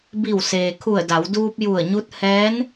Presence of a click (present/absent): absent